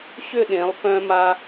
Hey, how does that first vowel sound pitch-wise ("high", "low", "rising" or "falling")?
falling